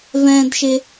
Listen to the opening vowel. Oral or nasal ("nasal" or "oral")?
nasal